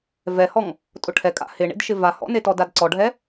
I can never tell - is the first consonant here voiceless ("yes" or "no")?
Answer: no